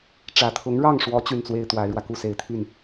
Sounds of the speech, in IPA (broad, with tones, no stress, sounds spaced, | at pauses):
ʈ͡ʂ ä˨˩ t̪ʰ ʊ˧˥ ŋ ɻ ɑ˥˩ ŋ ʂ w ɔ˧˥ t͡ɕ y˥˩ n t͡s w e˥ ɪ̯ t̪ w a˧˥ ɪ̯ ɻ w ä˧ k u˥˩ s e˨˩ ɪ̯ t̪ʰ y˥˩ n